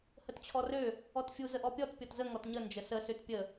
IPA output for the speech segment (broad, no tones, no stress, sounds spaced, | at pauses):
h ə t t͡ɕʰ ɔ r ø | ɔ t fʲ u z ə ʔ ɔ pʲ ɔ t pʲ ɔ t z ə ŋ ɔ t ɲ ə n d͡ʒ ə s ə s ø t pʲ ə